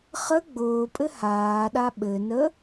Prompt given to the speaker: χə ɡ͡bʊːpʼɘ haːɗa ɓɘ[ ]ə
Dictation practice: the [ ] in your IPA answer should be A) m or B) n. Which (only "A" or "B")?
B